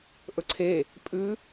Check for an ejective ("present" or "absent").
present